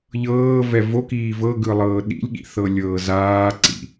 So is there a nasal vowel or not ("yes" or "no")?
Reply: no